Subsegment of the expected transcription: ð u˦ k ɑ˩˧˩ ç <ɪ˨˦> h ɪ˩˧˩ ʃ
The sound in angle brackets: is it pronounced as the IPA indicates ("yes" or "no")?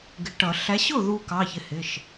yes